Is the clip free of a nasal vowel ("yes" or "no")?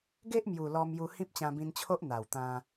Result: no